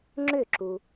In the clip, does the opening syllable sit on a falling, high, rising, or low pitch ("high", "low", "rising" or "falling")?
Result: falling